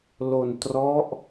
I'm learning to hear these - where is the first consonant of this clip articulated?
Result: tongue tip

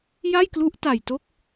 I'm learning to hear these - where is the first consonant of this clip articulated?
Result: palate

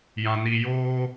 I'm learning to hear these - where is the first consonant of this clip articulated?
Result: palate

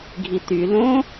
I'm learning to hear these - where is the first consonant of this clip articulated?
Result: velum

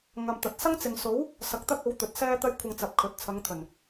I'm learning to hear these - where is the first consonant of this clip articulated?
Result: velum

